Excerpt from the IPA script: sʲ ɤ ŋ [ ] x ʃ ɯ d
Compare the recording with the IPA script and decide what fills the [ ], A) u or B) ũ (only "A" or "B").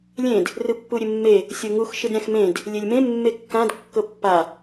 A